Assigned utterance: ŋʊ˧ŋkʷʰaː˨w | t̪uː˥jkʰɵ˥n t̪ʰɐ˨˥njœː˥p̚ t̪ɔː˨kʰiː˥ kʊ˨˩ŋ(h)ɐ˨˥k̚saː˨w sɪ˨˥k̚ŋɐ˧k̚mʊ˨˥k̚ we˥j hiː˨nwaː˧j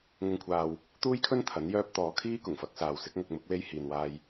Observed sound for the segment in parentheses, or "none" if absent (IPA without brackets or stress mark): f